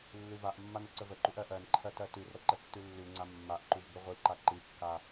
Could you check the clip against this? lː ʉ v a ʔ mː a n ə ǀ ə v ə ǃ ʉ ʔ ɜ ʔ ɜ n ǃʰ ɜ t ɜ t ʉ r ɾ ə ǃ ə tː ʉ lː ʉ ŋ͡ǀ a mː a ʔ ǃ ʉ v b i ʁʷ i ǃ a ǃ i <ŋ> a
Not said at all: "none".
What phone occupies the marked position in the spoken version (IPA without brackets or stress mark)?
kː